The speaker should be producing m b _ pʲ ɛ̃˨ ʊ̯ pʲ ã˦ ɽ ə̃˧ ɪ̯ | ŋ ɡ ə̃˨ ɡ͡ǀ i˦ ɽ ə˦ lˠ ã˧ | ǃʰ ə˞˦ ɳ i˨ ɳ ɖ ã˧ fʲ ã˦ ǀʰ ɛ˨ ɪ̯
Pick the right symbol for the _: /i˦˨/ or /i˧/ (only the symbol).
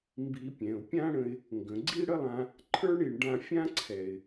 i˧